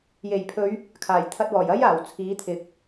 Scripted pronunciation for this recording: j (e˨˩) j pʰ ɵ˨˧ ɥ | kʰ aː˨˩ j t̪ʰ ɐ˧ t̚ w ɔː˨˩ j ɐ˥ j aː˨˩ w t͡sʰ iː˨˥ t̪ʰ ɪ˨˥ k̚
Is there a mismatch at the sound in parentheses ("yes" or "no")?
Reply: no